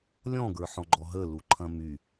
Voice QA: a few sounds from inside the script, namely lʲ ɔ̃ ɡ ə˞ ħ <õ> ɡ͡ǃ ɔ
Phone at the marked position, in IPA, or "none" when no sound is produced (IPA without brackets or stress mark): ɔ̃